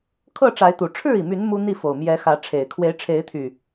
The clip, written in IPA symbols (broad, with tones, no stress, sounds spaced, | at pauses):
kʰ ɤ˥˨ ʈ͡ʂ a˨˦ ɪ̯ t̪ u˨˩ ʈ͡ʂʰ ɻ̩˥˨ i˩ m y˨˦ n m u˦ n̪ i˥˨ f o˨˩ ʊ̯ m j ɛ˨˦ x ä˨˦ ʈ͡ʂʰ e˨˩ ɪ̯ kʰ w e˨˦ ɪ̯ ʈ͡ʂʰ e˨˦ ɪ̯ t̪ʰ y˨˩